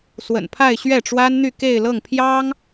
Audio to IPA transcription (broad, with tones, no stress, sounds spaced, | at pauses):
s w ə̰˨˩ n pʰ a˥˧ ɪ̯ ɕ ɥ ɛ˥˩ ʈ͡ʂ w a˥ n n̪ y˥˧ k e˥˧ ɪ̯ l ɤ˥˩ ŋ pʰ j ɑ˥ ŋ